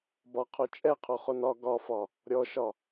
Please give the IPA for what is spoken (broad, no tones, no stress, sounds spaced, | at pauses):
b ɒ qʰ o t͡ʃʼ ɛ qʰ o χ o n ɒ ɡ ɒ f ɒ | ɾʲ ɔ ʃ ɒ